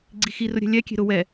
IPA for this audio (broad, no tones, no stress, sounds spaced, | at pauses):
ɡ͡ǀ i x i r ʊ ɾʲ ɛ̤ lʲ ɛ kʲ e̤ ɾ ʊ w ɛ